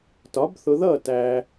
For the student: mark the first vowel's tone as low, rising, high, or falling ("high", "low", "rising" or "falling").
rising